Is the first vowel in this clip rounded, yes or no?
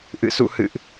no